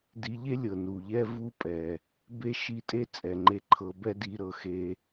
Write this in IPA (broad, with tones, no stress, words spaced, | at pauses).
di˧ʎe˦lʲɤ˨ nu˨ʎɛ˦vu˦pʼɛ˨ | be˦ ʃi˦˨tʼe˦t͡sʼɛ˨ŋ͡ǃe˧ ǃʰɤ˧bɛ˦di˧ ɾɤ˨ xe˧